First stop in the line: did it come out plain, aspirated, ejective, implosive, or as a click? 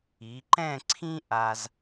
click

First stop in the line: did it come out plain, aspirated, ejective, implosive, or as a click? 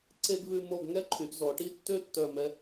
click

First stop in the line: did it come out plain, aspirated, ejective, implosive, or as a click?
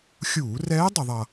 plain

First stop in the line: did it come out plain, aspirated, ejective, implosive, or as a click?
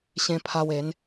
aspirated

